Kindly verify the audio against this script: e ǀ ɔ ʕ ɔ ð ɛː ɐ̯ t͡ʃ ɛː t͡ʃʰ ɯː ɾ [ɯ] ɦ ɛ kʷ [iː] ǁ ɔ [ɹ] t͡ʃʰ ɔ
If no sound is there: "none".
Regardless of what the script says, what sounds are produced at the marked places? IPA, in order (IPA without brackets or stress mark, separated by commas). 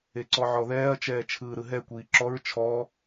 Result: ɯ, iː, ɹ